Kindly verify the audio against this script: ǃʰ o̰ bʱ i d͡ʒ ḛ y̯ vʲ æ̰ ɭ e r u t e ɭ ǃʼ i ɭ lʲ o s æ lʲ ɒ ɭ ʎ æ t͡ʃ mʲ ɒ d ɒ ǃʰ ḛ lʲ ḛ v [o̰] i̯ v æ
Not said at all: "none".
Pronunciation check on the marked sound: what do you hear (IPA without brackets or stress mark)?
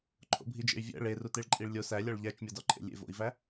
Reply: o̰